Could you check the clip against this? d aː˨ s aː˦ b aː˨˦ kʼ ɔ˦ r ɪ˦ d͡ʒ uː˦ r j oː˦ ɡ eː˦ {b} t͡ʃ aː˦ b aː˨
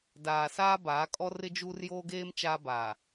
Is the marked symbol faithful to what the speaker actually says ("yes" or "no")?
no